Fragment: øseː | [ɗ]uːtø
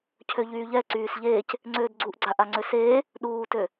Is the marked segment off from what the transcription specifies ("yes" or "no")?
no